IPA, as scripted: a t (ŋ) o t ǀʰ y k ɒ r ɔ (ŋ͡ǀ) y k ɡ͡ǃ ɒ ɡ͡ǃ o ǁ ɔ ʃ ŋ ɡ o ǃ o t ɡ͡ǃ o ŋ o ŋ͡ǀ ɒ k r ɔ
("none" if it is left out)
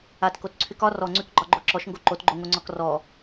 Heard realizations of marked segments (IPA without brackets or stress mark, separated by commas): k, ŋ͡ǀ